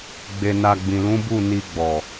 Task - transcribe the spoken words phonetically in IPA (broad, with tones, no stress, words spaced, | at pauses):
ɡ͡be˧na˧ ɡ͡bĩ˨lũ˨˦bu˦˨ ni˧ɡ͡bɔ˨